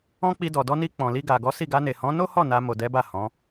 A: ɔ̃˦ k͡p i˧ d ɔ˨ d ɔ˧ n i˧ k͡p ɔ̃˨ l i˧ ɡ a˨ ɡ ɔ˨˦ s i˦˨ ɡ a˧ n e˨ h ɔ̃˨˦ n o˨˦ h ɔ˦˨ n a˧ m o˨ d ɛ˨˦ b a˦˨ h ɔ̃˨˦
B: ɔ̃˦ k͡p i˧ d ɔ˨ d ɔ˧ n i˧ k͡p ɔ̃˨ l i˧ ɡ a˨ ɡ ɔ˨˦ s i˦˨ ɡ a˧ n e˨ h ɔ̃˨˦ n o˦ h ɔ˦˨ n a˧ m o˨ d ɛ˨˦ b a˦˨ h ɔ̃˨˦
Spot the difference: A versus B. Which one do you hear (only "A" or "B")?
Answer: B